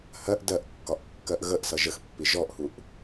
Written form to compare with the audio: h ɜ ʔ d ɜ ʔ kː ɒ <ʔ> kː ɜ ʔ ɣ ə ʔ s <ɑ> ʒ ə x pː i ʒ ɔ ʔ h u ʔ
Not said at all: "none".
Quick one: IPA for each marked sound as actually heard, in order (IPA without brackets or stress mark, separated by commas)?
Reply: ʔ, ʌ